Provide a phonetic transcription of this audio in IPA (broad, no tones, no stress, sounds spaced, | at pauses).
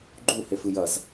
ɡ͡ǃ u h e f ɨ j ɐ z